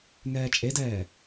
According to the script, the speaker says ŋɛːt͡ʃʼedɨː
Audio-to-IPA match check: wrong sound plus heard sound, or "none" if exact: ɨː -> ɛː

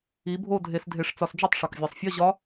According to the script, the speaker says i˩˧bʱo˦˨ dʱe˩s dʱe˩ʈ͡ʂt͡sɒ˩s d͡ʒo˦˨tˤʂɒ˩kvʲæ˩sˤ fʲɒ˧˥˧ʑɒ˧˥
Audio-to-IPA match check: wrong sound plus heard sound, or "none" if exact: ʈ͡ʂ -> ʂ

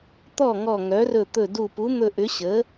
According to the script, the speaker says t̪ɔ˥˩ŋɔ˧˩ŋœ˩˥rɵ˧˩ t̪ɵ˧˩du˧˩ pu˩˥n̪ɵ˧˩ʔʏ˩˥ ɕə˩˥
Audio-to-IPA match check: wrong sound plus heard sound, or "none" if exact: none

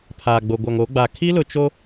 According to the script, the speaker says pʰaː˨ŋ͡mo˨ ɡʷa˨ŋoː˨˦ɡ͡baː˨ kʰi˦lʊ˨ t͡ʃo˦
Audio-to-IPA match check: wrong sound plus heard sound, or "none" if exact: ŋ͡m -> ɡ͡b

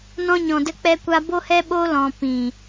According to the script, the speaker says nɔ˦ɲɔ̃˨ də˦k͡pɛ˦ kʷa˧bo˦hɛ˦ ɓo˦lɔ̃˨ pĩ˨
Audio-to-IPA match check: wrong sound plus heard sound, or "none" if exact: ɔ˦ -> ɔ̃˦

